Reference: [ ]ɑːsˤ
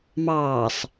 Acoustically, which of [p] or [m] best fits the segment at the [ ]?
m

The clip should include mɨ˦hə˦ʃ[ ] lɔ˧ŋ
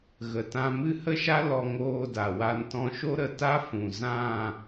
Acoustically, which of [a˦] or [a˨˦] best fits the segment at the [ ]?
a˦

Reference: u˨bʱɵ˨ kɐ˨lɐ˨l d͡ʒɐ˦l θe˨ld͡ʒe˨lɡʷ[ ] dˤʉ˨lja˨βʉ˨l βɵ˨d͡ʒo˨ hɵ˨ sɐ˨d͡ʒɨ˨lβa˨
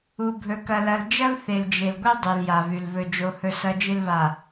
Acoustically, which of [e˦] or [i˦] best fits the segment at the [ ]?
e˦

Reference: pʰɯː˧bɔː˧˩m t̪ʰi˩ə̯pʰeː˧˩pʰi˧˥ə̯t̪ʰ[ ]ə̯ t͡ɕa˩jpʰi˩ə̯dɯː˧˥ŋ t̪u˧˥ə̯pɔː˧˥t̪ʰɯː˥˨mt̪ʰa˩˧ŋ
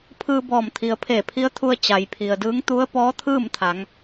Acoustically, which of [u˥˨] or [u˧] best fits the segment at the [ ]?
u˧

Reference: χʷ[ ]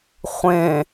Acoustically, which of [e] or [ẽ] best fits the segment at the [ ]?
ẽ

